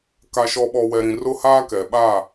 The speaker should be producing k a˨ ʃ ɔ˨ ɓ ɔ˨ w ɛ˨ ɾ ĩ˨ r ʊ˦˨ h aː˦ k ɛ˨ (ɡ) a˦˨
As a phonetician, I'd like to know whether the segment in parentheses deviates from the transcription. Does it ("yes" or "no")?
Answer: yes